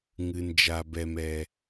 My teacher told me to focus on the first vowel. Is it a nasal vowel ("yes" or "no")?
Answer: no